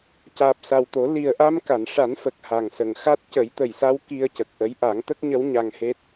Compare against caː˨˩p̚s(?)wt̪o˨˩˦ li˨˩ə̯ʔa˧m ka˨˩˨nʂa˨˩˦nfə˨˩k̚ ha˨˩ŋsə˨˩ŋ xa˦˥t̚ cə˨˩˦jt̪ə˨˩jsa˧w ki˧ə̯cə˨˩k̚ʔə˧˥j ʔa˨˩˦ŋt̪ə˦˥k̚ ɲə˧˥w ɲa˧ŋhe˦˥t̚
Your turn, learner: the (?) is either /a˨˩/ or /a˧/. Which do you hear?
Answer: a˨˩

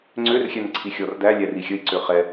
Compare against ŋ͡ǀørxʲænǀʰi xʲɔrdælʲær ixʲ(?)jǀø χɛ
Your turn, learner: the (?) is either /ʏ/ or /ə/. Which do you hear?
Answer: ə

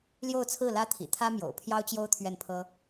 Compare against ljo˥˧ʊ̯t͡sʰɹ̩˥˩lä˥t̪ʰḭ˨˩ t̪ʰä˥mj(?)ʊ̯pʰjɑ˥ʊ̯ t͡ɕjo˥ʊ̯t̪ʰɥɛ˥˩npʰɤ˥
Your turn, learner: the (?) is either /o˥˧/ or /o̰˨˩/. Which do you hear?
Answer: o̰˨˩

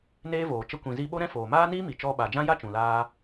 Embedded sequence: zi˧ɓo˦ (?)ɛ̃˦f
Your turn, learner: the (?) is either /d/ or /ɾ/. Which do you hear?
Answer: ɾ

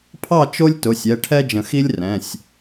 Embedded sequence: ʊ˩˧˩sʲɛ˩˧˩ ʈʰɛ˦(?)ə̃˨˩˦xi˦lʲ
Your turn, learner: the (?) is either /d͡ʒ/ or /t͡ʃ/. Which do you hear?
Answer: d͡ʒ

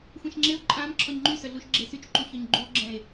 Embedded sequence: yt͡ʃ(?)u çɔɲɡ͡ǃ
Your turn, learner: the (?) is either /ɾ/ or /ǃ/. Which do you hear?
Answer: ǃ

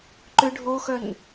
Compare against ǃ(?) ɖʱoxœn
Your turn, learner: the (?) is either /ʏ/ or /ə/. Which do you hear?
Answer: ʏ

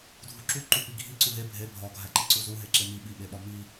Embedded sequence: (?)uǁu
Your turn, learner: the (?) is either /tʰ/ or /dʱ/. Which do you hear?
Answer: dʱ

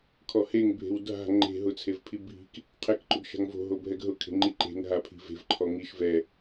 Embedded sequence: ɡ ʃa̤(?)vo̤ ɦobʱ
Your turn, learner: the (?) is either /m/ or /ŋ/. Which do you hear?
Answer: ŋ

